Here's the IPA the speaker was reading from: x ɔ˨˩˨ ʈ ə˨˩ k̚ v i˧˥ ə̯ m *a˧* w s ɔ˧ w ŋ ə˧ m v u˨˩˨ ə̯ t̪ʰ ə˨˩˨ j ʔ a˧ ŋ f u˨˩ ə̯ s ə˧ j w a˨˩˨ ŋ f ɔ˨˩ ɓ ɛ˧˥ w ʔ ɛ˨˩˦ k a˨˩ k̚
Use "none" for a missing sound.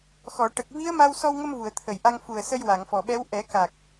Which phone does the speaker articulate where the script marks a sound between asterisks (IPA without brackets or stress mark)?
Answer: a˧